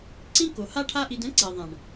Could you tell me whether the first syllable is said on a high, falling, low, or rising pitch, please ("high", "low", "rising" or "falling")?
high